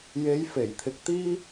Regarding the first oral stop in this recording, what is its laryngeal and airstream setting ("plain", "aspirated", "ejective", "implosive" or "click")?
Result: aspirated